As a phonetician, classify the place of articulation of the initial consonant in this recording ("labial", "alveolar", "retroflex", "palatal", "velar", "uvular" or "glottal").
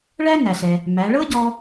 retroflex